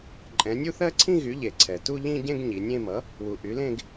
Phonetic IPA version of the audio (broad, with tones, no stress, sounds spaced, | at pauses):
ǃʼ ɛ̃˩˧ nʲ u˥˧ θ ɜ˥˧ ǀʰ ĩ˥˧ ɣ y˩˥ ʎ e˩ ǀʰ ɛ˩ t u˥˧ ʎ ĩ˥˧ ɟ ẽ˥˧ ɡ ɲ i˩˧ nʲ ẽ˥˧ m ʌ˩˥ | w u˩ ʔ y˩˥ l ẽ˥˧ ɡ